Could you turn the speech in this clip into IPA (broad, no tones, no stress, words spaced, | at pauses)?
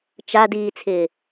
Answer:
t͡ʃa diːt͡sʰɪː